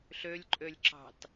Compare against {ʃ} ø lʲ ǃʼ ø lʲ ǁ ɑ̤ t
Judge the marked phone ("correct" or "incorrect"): incorrect